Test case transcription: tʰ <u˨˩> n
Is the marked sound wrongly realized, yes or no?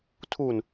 no